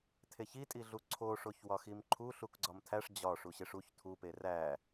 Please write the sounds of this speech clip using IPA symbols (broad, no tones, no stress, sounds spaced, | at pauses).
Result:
tʰ e ç i tʼ i ɮ u ǀʰ o ʂ o ç w ɒ x i m ǃʰ u ɬ u k ɡ͡ǀ ɒ m tʰ æ ʂ d͡ʑ ɒ ʂ u ɕ e ʂ u ç tʰ u p e r æ